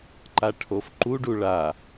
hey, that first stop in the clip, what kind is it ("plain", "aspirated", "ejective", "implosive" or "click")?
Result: click